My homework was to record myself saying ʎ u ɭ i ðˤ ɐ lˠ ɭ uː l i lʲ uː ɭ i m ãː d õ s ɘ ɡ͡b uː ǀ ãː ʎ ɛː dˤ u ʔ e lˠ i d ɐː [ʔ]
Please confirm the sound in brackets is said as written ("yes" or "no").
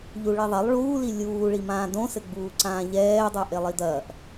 yes